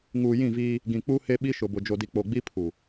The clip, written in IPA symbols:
ŋ uː˨ j ĩ˦˨ v iː˦ | ɡ ĩ˨ k͡p u˦ h e˦ ɓ i˦ ʃ ʊ˨ b ʊ˨ d͡ʒ o˨ d i˨ k͡p o˨ ɡ͡b i˦ pʰ u˨

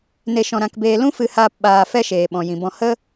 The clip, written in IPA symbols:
n e˧ ʃ ɔ̃˧ ɾ ã˧ k b eː˧ l ũ˦ f ɨ˧ h aː˧ p ɓ aː˧ f ɛ˦ ʃ eː˨ ɓ ɔ̃˨ j ĩ˨ b ɔ̃˧ h ə˦

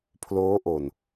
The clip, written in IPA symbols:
pʰ l oː˦˥ ʔ o˨˩ n

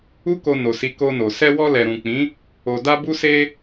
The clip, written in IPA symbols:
u˦ k o˧ n o˨ s i˨˦ k o˧ n o˨ s ɛ˧ w ɔ˧ l ɛ˨ ɾ ũ˨ k͡p ĩ˨˦ | o˨ d a˧ b u˧ s e˧

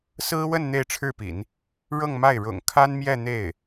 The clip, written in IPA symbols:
s ɹ̩˥ w ə˥˧ n n̪ e˥˧ ɪ̯ ʈ͡ʂʰ ɻ̩˥˩ p ḭ˨˩˦ n | ɻ ɤ˥˧ ŋ m a˥˩ ɪ̯ ɻ ʊ̰˨˩ ŋ kʰ a˥ n m j ɛ˥˧ n̪ e˥˩ ɪ̯

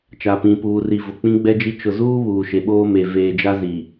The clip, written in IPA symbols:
t͡ʃ a˨ p ĩ˨ p uː˨ r i˨ v ʊ˨ k͡p ĩ˦ ɡ͡b ɛ˦ d͡ʒ i˦ t͡ʃ ʊ˨ z uː˦ β uː˨ ʃ e˨ ɓ oː˦ m e˨ v eː˨ d͡ʒ a˦ z i˨

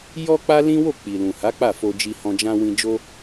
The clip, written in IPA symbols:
j ɔ˦ k͡p a˦ l ĩ˦ w o˦˨ k͡p i˨ l ũ˨ h a˨˦ k͡p a˦˨ f o˧ d͡ʒ i˧ h ɔ̃˧ d͡ʒ ã˦ w ĩ˧ d͡ʒ o˦

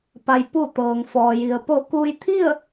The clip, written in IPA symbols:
p a˩ j p u˧˩ t̪ ɤː˩ ŋ f ɔː˩ j i˩ ə̯ p o˧˩ k uː˧ j t̪ʰ i˥˨ ə̯

